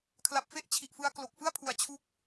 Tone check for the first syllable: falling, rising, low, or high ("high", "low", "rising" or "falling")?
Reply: low